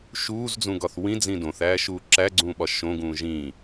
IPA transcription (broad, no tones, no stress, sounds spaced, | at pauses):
ʃ uː z d͡z ũ ɡ ɒ θ w ĩ d͡z ĩ d õ θ æː ʃ uː ǁ æ ɡ͡ǀ ũː ɓ ɒ ʃ õ ɡ ũː ʒ ĩ